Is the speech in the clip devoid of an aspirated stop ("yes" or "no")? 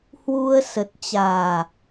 yes